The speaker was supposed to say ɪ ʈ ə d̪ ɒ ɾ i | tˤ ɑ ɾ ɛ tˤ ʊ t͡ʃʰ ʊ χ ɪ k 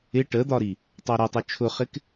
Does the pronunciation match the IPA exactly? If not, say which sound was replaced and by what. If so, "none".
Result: none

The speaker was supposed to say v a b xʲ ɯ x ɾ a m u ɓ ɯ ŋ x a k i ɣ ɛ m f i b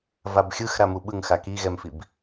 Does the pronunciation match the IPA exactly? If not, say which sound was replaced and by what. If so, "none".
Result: none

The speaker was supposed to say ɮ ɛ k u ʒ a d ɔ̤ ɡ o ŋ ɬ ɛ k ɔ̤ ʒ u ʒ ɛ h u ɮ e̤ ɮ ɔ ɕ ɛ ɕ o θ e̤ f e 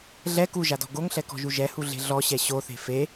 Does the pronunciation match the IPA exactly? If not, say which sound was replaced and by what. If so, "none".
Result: none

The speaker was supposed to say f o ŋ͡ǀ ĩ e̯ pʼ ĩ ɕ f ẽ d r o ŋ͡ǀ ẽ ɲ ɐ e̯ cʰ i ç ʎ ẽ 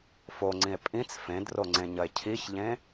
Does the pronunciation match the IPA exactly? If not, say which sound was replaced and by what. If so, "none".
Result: ɕ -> t͡s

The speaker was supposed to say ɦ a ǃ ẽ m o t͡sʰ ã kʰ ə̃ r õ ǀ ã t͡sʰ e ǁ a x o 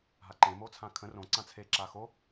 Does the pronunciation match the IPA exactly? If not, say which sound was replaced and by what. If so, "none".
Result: none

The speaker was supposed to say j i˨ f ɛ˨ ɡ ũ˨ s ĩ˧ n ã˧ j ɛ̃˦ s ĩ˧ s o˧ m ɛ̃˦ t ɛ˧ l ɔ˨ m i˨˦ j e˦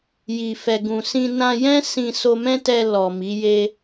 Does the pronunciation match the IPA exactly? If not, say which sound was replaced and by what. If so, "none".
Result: none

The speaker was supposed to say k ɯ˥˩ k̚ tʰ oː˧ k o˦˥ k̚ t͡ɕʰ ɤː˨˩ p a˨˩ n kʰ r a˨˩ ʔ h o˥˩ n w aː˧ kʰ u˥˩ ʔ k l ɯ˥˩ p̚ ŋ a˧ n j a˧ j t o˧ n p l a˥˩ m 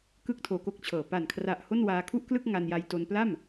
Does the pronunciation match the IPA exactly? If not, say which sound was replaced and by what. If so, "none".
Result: p̚ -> k̚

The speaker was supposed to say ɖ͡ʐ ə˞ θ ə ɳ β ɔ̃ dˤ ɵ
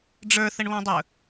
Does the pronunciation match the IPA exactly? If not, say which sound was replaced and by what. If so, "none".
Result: none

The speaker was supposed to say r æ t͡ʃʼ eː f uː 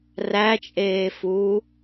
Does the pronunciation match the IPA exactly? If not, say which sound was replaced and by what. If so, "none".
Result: none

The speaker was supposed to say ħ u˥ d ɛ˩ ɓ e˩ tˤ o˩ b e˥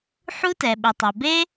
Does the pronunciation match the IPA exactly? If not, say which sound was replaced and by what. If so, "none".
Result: d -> t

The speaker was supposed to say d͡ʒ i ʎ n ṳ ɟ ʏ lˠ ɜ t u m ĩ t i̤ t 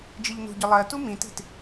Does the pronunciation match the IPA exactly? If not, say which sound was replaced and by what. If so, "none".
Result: none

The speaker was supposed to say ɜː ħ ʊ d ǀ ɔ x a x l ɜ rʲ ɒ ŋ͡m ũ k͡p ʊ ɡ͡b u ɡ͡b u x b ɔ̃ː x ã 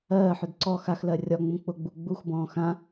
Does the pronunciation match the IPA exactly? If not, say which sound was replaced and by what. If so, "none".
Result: none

